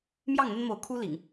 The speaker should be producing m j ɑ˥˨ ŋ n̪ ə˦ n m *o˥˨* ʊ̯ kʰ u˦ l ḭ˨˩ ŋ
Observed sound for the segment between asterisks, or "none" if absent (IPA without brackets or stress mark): o˨˦